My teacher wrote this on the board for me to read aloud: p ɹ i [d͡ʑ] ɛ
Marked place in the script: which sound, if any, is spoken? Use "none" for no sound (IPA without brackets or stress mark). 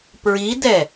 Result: d